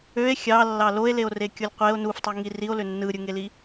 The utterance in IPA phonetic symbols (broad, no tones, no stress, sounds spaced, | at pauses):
ø e̯ xʲ ɑ lː ɑ l o e̯ l e o̯ r e kʲ o lʲ qʷ e o̯ n u f tˤ u ŋ i r i o̯ l ø nː ɯ ɾʲ ɯ ŋ e l i